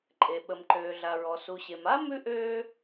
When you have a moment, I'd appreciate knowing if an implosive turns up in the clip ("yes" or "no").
yes